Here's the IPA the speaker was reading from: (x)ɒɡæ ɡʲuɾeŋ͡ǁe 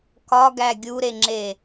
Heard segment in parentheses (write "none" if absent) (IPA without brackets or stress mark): k